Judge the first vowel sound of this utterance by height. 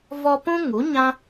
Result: mid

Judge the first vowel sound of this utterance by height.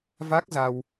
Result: low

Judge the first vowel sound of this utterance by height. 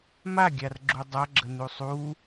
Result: low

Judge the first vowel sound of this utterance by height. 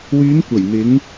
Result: high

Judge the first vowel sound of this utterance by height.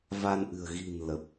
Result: low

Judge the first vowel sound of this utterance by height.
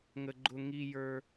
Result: mid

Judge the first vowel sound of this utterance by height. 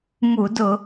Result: high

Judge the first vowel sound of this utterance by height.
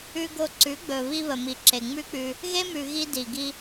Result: high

